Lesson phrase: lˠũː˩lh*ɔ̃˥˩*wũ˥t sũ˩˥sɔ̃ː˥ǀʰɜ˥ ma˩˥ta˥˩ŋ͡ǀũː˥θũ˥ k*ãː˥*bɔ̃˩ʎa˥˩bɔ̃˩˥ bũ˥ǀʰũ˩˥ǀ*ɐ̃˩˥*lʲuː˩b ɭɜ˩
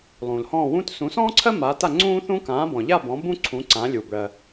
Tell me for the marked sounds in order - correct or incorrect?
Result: correct, incorrect, incorrect

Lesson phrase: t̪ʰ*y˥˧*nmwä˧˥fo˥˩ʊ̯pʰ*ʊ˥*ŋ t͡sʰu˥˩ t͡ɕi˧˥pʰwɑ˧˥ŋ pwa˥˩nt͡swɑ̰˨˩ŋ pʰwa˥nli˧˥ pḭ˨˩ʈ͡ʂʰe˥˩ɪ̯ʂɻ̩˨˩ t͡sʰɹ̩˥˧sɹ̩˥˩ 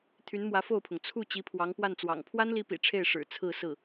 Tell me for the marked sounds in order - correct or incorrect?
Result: incorrect, incorrect

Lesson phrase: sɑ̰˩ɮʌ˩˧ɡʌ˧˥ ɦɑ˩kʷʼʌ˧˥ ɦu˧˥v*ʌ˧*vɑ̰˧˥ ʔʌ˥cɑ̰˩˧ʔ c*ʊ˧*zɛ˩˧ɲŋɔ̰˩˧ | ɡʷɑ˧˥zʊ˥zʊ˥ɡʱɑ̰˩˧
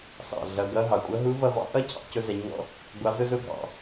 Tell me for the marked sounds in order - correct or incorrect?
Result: correct, correct

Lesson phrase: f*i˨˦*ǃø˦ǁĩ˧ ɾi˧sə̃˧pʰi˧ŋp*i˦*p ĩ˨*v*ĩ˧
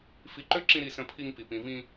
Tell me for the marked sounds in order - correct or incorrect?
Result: correct, incorrect, correct

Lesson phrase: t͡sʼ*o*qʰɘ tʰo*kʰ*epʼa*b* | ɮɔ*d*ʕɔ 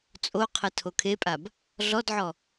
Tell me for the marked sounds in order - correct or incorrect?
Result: correct, correct, correct, correct

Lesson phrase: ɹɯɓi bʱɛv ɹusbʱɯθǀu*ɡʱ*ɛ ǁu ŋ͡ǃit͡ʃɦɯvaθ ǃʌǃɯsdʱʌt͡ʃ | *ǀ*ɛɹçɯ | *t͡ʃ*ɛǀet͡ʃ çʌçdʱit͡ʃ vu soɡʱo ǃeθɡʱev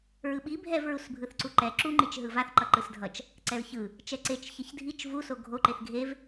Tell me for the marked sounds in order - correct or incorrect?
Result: incorrect, correct, correct

